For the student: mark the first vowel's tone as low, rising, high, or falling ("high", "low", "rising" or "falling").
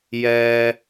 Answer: low